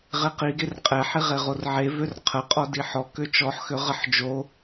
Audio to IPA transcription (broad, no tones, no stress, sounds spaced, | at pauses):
ʁ e q i ɡ e r qʼ ɛ ħ i ʁ e ʁ o r ʕ e v ø r qʰ ə qʼ ɔ d i ħ ɔ k ø t͡ʃ ɔ ħ x ø ʁ ə ħ d͡ʒ o